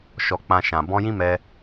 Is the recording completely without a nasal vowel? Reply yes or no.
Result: no